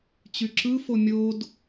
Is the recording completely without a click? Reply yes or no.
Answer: no